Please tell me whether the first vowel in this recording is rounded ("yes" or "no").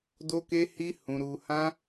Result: yes